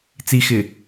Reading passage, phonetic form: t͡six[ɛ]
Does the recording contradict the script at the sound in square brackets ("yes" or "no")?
yes